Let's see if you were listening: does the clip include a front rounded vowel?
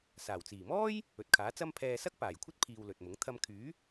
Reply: yes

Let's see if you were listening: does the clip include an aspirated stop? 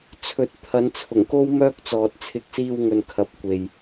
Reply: yes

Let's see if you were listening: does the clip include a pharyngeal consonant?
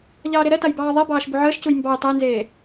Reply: yes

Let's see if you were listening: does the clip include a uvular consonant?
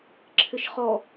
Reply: yes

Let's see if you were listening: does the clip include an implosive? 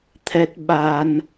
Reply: yes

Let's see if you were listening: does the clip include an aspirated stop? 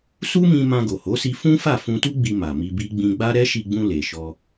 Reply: no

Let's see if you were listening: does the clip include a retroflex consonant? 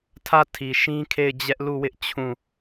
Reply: no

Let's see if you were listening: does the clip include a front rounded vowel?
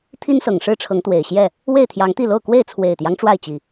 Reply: no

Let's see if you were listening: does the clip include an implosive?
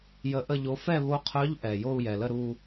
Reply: no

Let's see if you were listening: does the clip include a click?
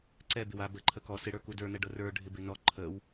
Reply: yes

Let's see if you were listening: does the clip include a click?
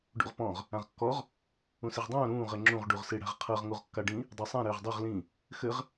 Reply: yes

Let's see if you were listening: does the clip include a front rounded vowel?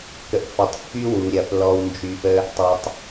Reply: yes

